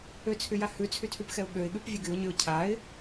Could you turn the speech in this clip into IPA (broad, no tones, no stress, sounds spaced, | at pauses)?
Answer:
ø t͡sʰ y j a h ʉ t͡sʰ y tʰ y p x ɛ ʊ̯ ɠ ø ɪ̯ ɠ ʉ p vʲ ʉ ɡ y ʊ̯ ɲ y ʊ̯ cʰ a ɪ̯